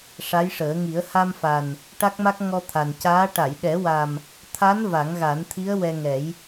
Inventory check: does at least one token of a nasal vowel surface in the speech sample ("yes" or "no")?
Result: no